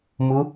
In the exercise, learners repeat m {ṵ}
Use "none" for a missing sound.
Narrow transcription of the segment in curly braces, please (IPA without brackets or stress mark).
u